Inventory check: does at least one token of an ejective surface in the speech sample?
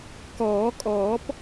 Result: yes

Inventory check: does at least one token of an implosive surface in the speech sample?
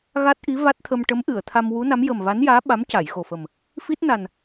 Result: yes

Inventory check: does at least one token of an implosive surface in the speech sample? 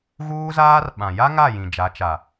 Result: yes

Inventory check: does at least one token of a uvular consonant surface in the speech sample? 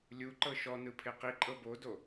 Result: yes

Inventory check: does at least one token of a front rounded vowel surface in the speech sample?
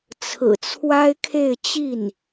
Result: no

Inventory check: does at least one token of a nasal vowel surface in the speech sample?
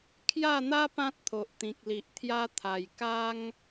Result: yes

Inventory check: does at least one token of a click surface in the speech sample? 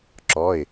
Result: yes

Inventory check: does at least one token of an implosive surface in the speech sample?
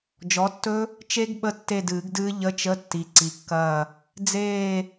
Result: yes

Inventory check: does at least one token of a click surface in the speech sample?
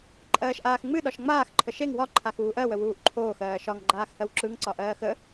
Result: yes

